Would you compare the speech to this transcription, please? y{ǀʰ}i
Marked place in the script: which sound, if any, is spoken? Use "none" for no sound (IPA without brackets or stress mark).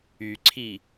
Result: ǀʰ